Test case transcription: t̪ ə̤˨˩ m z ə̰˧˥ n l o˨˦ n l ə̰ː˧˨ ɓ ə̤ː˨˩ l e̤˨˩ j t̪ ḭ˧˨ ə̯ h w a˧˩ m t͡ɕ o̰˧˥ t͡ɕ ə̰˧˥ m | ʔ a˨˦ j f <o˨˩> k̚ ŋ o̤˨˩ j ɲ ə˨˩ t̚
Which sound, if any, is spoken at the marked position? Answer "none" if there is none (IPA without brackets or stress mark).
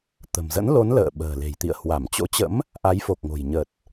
o˨˩